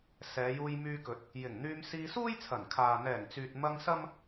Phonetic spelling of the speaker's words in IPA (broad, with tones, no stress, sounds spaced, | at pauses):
s ɛː˨˧ j uː˧ j m yː˧ k ɵ˨˥ t̚ | j ɪ˨˩ ŋ n̪ yː˧ m s iː˧ s uː˥ j t͡sʰ ɐ˨˩ n kʰ aː˨ n̪ ɛː˨˩ ŋ t͡s yː˨ t̚ m ɐ˧ ŋ s ɐ˥ m